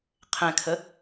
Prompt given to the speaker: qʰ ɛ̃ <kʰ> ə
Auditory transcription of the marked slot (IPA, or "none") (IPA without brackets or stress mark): kʰ